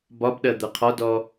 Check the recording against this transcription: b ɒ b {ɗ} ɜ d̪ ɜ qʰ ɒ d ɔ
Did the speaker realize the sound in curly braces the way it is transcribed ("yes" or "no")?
yes